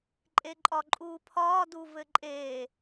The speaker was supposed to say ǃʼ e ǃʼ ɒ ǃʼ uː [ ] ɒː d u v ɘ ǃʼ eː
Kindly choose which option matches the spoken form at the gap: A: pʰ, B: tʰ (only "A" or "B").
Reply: A